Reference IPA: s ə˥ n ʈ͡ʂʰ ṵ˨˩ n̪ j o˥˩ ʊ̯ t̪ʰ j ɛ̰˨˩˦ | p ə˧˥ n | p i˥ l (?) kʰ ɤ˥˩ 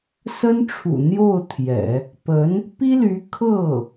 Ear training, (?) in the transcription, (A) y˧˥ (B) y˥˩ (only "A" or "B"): A